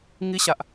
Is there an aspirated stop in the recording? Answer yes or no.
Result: no